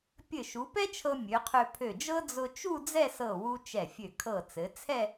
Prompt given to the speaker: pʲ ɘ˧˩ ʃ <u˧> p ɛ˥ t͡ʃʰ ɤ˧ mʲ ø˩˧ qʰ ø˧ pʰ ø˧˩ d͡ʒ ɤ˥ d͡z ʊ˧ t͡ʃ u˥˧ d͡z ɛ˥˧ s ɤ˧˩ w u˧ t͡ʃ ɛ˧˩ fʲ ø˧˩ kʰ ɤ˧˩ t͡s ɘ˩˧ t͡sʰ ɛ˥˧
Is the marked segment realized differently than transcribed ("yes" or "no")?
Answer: yes